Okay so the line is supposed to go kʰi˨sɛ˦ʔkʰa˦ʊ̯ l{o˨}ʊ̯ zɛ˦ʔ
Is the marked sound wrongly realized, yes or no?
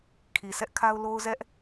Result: yes